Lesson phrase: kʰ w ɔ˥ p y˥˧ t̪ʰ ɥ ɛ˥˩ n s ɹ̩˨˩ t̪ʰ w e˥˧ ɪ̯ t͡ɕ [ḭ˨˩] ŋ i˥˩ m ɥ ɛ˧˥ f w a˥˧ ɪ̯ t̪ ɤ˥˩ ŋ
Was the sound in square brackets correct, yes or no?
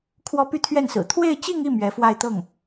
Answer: no